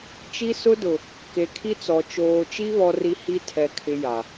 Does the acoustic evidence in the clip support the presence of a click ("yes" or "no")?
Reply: no